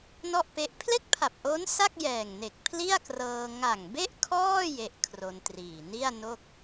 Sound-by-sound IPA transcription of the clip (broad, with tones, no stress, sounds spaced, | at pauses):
n ɔ˥˩ ʔ p e˦˥ ʔ pʰ l e˥˩ k̚ pʰ a˨˩ p̚ ʔ oː˦˥ n s a˥˩ k̚ j ɛː˨˩ ŋ n e˨˩ k̚ pʰ l i˥˩ a̯ k r ɤː˧ ŋ a˨˩ ŋ b e˥˩ ʔ kʰ ɔː˥˩ j e˦˥ ʔ kʰ r o˧ n t r iː˨˩ n i˥˩ a̯ n o˥˩ k̚